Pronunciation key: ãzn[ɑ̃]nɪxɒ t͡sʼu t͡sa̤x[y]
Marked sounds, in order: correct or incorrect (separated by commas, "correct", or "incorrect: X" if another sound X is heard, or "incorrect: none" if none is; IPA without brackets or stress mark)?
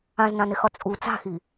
correct, incorrect: i